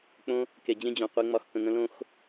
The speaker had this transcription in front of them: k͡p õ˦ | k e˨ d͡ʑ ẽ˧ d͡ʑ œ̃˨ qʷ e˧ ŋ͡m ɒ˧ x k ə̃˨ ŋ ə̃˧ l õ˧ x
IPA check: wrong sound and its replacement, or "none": none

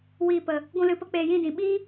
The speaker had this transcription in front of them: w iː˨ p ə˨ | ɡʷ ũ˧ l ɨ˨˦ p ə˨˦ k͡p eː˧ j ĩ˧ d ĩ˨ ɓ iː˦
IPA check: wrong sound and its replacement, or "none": none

